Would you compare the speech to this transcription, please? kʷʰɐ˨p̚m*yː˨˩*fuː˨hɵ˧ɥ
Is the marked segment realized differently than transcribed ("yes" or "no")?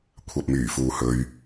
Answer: no